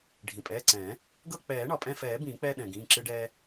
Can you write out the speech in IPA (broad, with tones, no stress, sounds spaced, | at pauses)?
ɖʱ ĩ˩ pʼ ɛː˩˧˩ ǀ ɛ̃ː˨˩˦ | ɡ ɤ˦˨ k͡p ɛː˨˩˦ ɳ ɒ˩ pʼ ɛ̃˦˨ f ɛː˨˩˦ b ĩː˨˩˦ k͡p ɛ˦ ɗ ɛ̃˩ ɡ ĩː˩˧˩ ǁ ɨ˦ ɖ ɛː˦